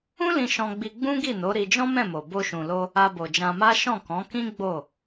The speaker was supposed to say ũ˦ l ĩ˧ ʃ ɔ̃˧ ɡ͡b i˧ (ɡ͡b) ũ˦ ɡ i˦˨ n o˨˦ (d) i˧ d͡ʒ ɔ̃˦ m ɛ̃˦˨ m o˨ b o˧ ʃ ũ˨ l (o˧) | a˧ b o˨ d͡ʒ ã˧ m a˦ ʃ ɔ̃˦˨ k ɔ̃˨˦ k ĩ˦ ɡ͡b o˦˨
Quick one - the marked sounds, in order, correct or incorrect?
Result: correct, incorrect: ɾ, correct

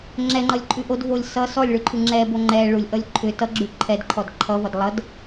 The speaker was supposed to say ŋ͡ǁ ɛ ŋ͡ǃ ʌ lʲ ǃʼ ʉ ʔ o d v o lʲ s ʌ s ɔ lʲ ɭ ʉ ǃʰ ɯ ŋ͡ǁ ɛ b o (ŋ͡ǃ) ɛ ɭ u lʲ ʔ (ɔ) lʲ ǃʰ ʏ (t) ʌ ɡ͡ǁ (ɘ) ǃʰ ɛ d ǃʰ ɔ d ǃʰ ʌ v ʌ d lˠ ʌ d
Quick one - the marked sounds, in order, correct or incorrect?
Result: correct, incorrect: ʌ, correct, incorrect: ʉ

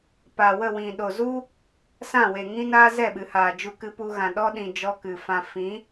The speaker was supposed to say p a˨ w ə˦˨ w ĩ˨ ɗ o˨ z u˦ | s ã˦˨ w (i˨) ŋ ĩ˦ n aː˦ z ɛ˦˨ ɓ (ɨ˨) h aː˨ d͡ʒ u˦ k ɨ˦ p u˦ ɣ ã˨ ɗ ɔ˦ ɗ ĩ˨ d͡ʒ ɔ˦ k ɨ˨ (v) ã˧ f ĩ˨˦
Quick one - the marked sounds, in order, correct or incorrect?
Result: incorrect: e˨, correct, incorrect: f

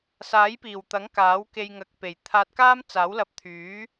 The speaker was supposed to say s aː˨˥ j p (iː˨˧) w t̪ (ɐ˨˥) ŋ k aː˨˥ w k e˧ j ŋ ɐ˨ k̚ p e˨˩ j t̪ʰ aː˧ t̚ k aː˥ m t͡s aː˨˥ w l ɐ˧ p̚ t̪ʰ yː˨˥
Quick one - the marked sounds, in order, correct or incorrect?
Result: incorrect: iː˨˩, correct

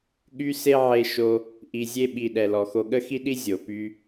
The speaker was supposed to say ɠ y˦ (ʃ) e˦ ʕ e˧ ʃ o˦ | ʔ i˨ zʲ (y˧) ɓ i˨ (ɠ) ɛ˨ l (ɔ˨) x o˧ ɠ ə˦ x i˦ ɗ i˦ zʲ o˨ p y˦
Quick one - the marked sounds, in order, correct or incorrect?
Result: incorrect: s, incorrect: e˧, incorrect: ɗ, correct

